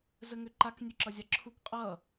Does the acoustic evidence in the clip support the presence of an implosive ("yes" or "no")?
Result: no